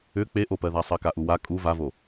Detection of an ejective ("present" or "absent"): present